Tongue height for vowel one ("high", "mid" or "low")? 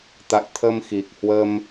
low